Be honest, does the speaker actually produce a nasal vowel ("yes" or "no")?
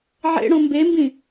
yes